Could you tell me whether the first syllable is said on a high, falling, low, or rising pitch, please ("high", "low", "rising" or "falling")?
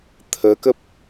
rising